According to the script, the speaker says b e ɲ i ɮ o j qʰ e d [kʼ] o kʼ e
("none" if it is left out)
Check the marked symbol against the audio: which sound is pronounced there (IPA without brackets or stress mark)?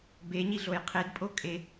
pʼ